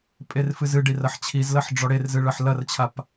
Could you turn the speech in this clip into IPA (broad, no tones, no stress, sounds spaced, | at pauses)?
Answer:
pʼ e r f ɨ z ɨ ɖ i r ɐ ħ t͡ɕʰ i z l ɐ ħ ɖ͡ʐ ɔ ɽ e r z ɨ ɭ ɐ ħ l ɐ r t͡ɕʰ a p